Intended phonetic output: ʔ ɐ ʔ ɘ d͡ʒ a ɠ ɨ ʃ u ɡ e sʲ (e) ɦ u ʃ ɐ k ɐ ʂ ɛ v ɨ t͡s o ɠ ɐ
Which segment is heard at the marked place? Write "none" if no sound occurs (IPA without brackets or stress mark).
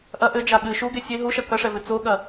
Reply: e